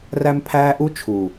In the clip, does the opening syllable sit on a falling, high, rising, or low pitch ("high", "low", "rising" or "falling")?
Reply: high